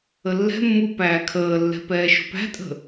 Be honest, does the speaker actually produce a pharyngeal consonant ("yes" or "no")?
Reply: no